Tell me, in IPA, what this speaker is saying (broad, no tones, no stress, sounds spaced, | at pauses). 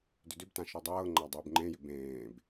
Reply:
d ʏ d ʏ b t ã ʃ ɔ dˤ ɤː ŋ͡ǃ a dˤ ʏː b ŋ͡ǃ ẽ j ʏ b ẽː b